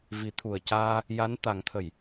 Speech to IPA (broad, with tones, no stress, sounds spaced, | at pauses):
v i˨˩˦ t̪ʰ u˨˩ ə̯ c aː˧ | j a˧˥ n t̪ a˨˩˦ ŋ t̪ʰ ə˨˩˨ j